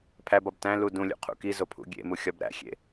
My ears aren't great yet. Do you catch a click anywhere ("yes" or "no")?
no